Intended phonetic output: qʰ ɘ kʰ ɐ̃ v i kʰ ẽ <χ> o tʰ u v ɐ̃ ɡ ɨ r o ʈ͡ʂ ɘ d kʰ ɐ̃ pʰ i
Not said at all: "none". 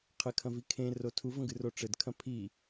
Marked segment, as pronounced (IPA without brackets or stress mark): r